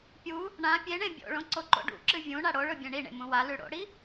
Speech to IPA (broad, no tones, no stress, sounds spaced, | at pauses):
pʲ u | ɳ ã pʲ e ɳ ẽ bʲ o̰ ɭ õ ǀ o ǃ o̰ ɖ ṵ ǁ ɨ vʲ ũ ɳ a ɽ o ɭ ɵ bʲ ẽ ɳ i ɳ ḛ m ũ w a l ʉ ɽ o̰ ɽ i